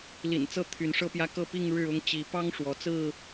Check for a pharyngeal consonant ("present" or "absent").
absent